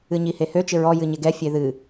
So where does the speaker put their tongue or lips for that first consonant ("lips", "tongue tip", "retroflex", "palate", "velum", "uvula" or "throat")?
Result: palate